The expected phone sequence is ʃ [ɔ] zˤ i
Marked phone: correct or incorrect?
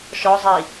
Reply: correct